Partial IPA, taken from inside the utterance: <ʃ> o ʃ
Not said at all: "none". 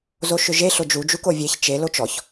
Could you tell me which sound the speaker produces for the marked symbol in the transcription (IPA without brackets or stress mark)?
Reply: z